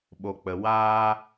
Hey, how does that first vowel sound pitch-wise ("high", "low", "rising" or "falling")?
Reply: low